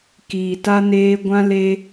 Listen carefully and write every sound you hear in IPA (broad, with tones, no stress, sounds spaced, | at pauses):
k iː˨ t a˦ n eː˦ ɡʷ ã˦ l e˦